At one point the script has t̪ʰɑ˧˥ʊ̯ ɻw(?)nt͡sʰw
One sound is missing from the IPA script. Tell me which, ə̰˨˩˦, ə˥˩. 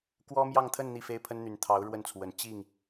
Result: ə˥˩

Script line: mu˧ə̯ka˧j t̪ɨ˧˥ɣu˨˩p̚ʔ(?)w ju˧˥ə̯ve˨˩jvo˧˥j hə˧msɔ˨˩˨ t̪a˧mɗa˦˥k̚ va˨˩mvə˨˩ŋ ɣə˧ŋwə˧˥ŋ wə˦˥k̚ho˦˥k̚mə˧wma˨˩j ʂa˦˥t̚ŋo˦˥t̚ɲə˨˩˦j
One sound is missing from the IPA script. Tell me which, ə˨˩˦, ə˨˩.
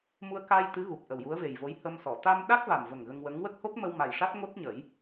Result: ə˨˩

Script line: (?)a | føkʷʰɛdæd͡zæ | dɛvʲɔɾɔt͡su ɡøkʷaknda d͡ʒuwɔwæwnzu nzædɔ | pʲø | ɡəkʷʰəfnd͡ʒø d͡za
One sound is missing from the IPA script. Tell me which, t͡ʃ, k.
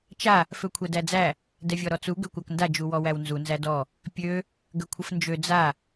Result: t͡ʃ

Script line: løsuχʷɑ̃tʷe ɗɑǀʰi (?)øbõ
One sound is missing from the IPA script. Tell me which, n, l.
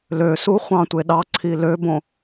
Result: l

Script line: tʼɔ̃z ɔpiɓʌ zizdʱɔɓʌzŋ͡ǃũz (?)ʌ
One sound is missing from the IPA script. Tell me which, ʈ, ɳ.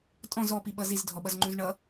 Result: ɳ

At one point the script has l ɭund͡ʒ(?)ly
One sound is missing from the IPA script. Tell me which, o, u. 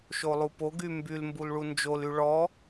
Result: o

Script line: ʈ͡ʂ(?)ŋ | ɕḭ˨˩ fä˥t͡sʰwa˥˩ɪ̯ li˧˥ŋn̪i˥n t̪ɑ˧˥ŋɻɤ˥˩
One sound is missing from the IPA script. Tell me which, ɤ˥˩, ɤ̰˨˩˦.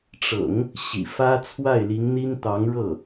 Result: ɤ̰˨˩˦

